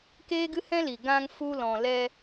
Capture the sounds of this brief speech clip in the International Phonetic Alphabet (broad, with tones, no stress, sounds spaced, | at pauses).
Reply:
k eː˦ ɡ ɨ˦ h ɛ̃˦ l i˨ ɡ ã˧ ŋ f u˧ l ɔ̃˨ l ɛ˧